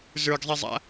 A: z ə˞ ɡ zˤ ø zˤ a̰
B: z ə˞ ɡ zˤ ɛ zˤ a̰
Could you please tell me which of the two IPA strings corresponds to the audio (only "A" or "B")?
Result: B